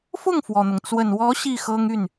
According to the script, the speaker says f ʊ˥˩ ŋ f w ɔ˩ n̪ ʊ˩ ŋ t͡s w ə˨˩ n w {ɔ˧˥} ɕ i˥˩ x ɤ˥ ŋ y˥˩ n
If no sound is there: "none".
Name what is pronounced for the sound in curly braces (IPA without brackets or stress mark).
ɔ˧˥